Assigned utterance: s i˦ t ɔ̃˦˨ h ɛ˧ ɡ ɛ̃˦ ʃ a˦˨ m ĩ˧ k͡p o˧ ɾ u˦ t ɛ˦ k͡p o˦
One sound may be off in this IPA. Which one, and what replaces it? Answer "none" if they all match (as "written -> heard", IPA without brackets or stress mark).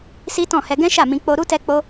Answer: none